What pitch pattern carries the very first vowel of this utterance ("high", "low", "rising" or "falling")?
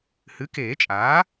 rising